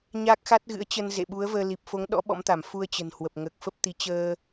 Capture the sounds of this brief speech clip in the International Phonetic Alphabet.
ɲaː˦˥k̚xa˦˥t̚ɣɨ̰˧˥ə̯ t͡ɕə˧nzḛ˧˨ɓu˨˦ə̯vəː˧ li˨˩p̚fo˨˦ŋɗɔ̰˧˥ ɓɔ̰˧˥mt̪a˧˩m fu˧ə̯t͡ɕə̤˨˩nhwə˨˩p̚ ŋəː˨˩k̚fə˦˥p̚t̪i˨˦ t͡ɕəː˧

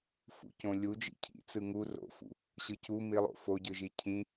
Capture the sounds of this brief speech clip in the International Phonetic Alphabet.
fṵcõlʲu d͡ʒḭcʰḭt͡sɯ ŋu ro̰fṵ | ɕɯcu milˠo̰ foɟɯʒi cʰĩ

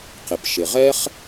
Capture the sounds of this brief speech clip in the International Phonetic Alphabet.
qɪ˩pʃɪ˩ʁɛ˥χ

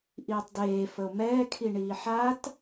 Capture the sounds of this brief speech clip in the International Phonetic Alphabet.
ʔiːtˤdeː fəo̯mɛːkʰiɳiː ħat

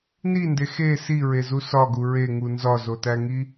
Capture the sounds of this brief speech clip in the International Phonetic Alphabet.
ninde xe siɹezu sɒɡu ɹeŋu nzɒzotæŋi

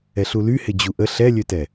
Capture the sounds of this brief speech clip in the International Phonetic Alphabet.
ɛɬulyhɪ d͡ʑuʔə ɬɛlʲøtɛ

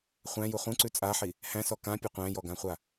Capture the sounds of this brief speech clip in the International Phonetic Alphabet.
χʷæ̃ju χũǀʉ t͡sʼaħi | hæ̃sɔ kãpʲɐ qʷæ̃jɔɡãχʷa

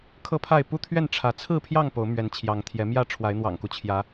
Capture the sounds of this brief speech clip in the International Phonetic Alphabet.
kʰɤ˦pʰa˥˨ɪ̯ pu˦t̪ʰɥɛ˥˨n ʈ͡ʂʰä˨˦ t͡sʰɹ̩˥˨pʰjɑ˥˨ŋ po˨˦ʊ̯mɥɛ˨˦nt͡ɕʰjɑ˨˦ŋt̪ʰjɛ˨˦ mjä˥˨ʈ͡ʂʰwa˨˦ɪ̯n̪wɑ̰˨˩ŋku˦ t͡ɕʰjä˨˦

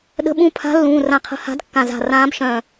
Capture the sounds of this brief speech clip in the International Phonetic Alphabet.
ɗə̤˧˥ɓũ˧˥ pʰa̤˧˥ lːũː˩˧˩rã˧˩qʰə̤˧˥ ha̤˧˥dkːã˧˩za̤˧˩ rãː˧˥bʃœ̃ː˧˩

